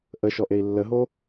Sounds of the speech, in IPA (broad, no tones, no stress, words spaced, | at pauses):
ʔəʃɔʔei̯ lːəɦo